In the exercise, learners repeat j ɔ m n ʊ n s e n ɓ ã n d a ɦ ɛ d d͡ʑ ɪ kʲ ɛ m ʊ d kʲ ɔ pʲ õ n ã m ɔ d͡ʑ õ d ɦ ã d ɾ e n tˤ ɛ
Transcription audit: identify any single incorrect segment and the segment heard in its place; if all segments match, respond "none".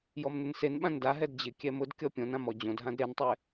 none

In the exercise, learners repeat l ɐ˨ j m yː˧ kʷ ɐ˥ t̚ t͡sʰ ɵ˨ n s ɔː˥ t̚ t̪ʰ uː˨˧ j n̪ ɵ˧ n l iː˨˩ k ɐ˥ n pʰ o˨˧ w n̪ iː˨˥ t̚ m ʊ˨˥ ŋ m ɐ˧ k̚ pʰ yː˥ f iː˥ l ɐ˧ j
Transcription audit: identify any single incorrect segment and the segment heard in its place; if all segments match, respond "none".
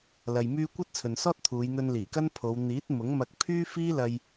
none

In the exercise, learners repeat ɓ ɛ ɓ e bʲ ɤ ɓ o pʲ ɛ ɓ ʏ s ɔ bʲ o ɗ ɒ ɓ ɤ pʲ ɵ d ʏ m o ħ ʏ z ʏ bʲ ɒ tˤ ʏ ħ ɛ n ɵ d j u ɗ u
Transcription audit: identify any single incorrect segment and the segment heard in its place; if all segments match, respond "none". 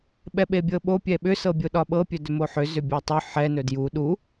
ɔ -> ɤ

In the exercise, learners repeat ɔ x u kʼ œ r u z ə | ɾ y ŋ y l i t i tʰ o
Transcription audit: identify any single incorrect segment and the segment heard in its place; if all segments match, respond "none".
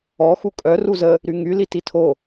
none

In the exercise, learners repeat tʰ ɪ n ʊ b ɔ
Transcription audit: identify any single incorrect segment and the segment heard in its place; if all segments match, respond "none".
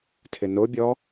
b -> bʲ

